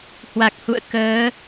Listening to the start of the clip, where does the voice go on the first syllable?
low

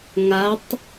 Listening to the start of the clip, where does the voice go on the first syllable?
rising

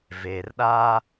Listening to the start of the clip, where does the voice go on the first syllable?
low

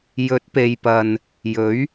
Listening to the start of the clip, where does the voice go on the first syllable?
rising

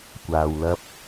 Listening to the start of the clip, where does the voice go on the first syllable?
low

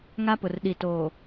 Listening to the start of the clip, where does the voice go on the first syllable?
high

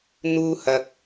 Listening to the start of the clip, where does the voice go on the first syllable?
high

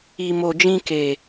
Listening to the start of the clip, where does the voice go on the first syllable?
low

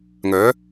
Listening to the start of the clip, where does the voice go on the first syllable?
rising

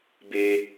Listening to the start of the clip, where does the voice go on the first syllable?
high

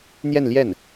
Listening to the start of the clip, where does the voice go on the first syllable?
falling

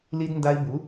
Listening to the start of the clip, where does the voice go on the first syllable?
high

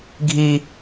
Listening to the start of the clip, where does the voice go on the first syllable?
high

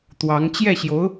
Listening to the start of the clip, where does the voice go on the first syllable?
rising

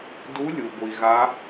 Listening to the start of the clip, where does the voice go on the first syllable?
rising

